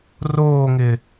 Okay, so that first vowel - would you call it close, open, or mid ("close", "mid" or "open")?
mid